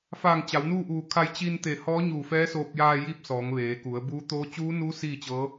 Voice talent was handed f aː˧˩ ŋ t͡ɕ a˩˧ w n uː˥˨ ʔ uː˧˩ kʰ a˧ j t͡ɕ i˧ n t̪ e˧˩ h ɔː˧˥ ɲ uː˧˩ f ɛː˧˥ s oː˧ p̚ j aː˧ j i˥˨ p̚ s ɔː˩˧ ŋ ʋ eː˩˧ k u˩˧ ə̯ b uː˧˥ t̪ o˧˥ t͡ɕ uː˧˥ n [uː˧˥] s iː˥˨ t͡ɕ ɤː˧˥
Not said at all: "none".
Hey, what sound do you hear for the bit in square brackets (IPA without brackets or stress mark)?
uː˧˥